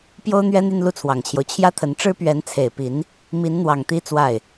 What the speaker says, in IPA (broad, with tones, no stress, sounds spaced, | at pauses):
p j o˥ ʊ̯ n̪ ɥ ɛ˥ n̪ y˥˧ n l u˥˩ t͡sʰ w ɑ˨˩ ŋ t͡ɕʰ j o˦ ʊ̯ t͡ɕʰ j ä˥ t̪ʰ ə˧˥ n ʈ͡ʂ ɻ̩˥ p ɥ ɛ˧˥ n t͡sʰ e˨˩ ɪ̯ p i˧˥ n | m i˧˥ n n̪ w ɑ˨˩ ŋ t̪ i˥ t͡s w a˥˩ ɪ̯